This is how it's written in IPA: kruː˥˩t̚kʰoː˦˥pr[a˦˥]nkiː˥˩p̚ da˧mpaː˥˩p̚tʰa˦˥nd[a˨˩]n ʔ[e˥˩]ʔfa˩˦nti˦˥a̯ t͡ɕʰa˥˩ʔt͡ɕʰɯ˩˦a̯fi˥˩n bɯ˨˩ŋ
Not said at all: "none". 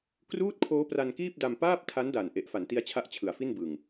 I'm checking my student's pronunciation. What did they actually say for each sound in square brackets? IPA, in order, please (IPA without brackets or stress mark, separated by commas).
a˧, a˨˩, e˨˩